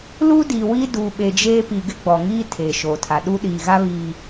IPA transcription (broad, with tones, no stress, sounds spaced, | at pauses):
l u˦ d i˨ w i˦ d u˨ ɓ e˨ d͡ʒ eː˦ p i˨ ɡ ɪ˦ ɡ͡b ɔ˨ ŋ iː˦ tʰ eː˨ ʃ oː˨ tʰ a˨ ɗ u˦ ɗ iː˨ ɣ a˦ β i˨